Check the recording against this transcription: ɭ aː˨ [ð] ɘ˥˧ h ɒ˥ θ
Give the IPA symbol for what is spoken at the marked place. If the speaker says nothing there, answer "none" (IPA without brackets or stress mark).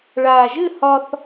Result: ʒ